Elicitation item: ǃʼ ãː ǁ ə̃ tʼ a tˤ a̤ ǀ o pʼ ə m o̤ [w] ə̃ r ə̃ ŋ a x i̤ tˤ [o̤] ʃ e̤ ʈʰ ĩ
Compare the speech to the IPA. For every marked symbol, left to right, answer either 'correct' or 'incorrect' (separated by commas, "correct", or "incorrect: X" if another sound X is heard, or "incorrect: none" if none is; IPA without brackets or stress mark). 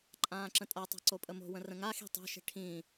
correct, correct